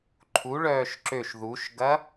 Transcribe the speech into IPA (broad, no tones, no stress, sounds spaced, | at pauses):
ǃʰ u ɭ œː ʃ ǁ ø ʃ ð u ʃ ɡ ɐ